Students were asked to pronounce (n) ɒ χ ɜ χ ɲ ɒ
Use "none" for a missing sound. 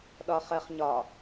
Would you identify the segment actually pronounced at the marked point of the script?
ɗ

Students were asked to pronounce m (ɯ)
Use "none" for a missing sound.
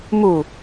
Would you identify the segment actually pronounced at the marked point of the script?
u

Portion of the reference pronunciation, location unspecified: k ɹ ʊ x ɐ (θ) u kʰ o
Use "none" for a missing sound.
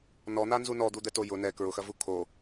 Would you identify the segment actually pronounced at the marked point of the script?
v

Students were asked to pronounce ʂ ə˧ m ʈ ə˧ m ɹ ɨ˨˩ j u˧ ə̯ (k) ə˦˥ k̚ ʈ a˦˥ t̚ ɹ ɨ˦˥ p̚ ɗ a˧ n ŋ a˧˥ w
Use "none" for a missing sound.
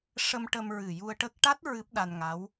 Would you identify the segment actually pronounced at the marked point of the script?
ʈ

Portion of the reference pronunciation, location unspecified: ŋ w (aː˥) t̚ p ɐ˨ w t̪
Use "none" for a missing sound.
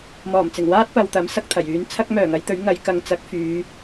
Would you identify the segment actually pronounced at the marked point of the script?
aː˥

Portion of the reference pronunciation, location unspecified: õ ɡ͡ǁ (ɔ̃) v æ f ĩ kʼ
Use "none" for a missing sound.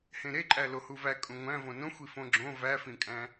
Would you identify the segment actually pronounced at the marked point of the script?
õ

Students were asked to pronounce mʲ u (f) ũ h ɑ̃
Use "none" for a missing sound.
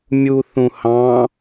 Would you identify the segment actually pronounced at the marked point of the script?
θ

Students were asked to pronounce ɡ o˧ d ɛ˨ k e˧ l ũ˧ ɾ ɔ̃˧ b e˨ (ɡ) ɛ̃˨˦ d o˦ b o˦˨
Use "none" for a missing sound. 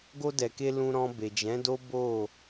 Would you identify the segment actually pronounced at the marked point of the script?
d͡ʒ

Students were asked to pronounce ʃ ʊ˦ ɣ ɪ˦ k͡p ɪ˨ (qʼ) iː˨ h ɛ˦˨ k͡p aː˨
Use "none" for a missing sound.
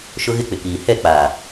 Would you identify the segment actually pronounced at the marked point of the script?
k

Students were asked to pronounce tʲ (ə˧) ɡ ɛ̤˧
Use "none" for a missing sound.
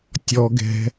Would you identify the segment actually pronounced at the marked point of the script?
ɔ˧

